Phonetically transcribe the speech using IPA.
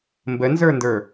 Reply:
m b ə n z ə˞ n d ə˞

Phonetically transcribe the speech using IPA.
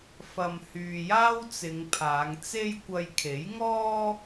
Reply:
f ɐ˨ m h yː˨ j aː˥ w t͡s ɪ˨˧ ŋ pʰ aː˨˧ ŋ t͡s e˥ j kʷ ɐ˧ j kʰ e˨˥ j ŋ ɔː˥

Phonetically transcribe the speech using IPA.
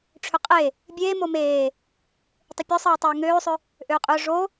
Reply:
ʈ͡ʂʰ ʏ qʼ e | bʲ eː m o m eː | tˤ ɪ pʲ o sˤ eː tˤ ʏː ŋ øː sˤ ʏ | ʔ øː qʼ ʏː ʐ o

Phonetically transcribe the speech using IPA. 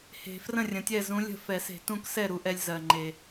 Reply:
h e̤˨˩˦ f r ə̃˥˩ rʲ ə̃˨˩ tʲ ɛ˥˩ z ũ˧˥ lʲ ə̤˥˩ f ɛ˨˩˦ s e̤˨˩˦ t ũ˧˥ k s ɛ˥˩ ɾ u˧ ʔ ɛ˧ lʲ z ɜ˨˩ ŋ͡ǃ e˨˩

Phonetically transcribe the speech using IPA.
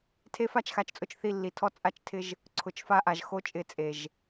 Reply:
tʰ e˦ f a˦ t͡ʃ x a˨ t͡ʃ t͡sʼ ʊ˦˨ t͡ʃ θ i˦˨ lː i˨ tʰ ɔ˦ t͡sʼ a˦ t͡ʃ tʰ ɪ˦ ʒ | ǀʰ ʊ˨ t͡ʃ f a˦ ʔ a˨ ʒ x o˦ t͡ʃʼ ɪ˦˨ t͡sʼ e˨ ʒ

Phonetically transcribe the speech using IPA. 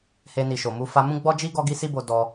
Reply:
h e˧ n i˨ ʃ o˨ m u˧ f a˧ m ũ˦ ɡ͡b ɔ˦ d͡ʒ i˦ ɡ ɔ˦ ɡ i˦ s i˦ b o˧ d ɔ˧

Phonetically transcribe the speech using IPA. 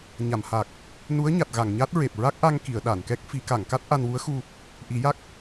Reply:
ɲ a˨˩˨ m h a˨˩ k̚ | n u˧˥ ə̯ ɲ a˨˩ t̚ ɣ a˨˩˨ ŋ ɲ a˦˥ t̚ ɹ e˨˩ p̚ ɹ a˦˥ k̚ ʔ a˧ ŋ k i˨˩˨ ə̯ ɗ a˨˩˨ n k ɛ˦˥ k̚ f i˨˩˦ k a˨˩˨ ŋ k a˦˥ t̚ ʔ a˧ n w u˧˥ ə̯ x u˧ | ʔ i˨˩˦ j a˦˥ k̚

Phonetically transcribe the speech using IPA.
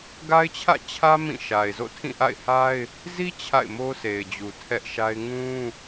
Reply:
ɡ a˦ ɪ̯ t͡ɕʰ ä̰˦˨ t͡ɕʰ ä˦ m ĩ˦˨ ʃ a˨ ɪ̯ z o̰˦˨ tʰ ĩ˦˨ ʔ a̰˦˨ ɪ̯ h a˦ ɪ̯ | z i˦ t͡ɕʰ a̰˦˨ ɪ̯ m o˦ s e˨ ɪ̯ d͡ʑ u˨ tʰ ɛ˦ ʔ ʃ a˦ ɪ̯ ŋ ũ˦

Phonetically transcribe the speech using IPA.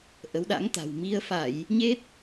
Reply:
ʔ ə˨˦ w ɗ a̰˧˥ ŋ t̪ a̤˨˩ w m i˧ ə̯ f a˧˩˨ j | ɲ e˦˥ t̚

